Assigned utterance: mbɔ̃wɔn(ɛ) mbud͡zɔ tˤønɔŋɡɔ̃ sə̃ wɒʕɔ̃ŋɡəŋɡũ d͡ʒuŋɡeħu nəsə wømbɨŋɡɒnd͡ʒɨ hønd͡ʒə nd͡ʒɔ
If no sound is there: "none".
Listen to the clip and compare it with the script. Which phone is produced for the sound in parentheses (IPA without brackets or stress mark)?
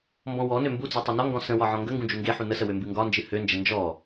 ø